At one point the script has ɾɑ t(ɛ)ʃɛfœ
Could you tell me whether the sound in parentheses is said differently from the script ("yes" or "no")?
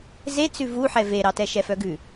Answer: no